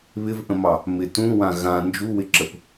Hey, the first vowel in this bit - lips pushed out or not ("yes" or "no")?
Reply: no